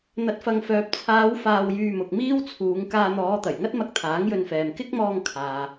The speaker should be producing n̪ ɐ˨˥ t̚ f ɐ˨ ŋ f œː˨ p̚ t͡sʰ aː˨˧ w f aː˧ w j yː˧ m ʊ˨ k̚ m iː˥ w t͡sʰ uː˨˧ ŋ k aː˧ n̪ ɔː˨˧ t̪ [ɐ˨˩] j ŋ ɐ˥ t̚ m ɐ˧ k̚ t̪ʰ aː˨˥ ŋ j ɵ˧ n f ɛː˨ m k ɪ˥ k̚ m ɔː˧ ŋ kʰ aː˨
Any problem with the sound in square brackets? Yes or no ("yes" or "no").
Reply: no